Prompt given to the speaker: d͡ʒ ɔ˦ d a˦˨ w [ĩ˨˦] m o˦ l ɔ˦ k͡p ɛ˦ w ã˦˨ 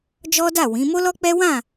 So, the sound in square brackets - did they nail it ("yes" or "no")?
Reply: yes